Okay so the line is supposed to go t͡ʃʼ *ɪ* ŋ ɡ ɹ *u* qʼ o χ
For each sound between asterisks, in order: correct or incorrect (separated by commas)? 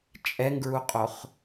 incorrect, correct